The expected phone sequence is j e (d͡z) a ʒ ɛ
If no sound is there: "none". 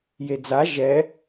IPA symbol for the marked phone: d͡z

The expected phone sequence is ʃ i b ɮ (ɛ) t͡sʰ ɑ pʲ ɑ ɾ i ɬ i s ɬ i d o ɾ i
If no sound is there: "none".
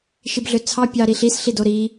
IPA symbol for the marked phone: ø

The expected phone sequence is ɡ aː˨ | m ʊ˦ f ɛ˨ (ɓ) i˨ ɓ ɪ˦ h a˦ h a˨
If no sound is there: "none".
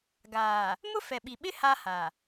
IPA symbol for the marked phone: ɓ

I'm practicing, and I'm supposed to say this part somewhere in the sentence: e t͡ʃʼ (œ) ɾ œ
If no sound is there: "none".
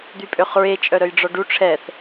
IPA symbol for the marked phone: œ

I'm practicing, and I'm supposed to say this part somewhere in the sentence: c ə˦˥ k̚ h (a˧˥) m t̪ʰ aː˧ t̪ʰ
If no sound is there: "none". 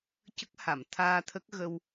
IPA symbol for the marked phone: a˨˩˨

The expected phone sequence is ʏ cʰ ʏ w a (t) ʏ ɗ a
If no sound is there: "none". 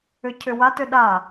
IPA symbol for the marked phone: t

